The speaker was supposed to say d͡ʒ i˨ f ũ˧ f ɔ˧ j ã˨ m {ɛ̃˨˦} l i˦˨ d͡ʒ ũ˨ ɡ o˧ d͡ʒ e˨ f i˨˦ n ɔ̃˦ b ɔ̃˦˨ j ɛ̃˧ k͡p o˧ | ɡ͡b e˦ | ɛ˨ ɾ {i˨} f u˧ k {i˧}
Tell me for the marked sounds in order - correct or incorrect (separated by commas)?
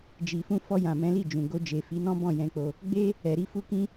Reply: correct, incorrect, incorrect